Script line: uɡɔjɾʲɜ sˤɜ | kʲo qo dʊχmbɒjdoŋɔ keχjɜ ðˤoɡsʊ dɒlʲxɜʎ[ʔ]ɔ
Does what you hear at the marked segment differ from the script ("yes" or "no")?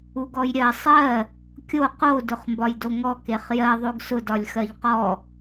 yes